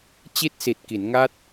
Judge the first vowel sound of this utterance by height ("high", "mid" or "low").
high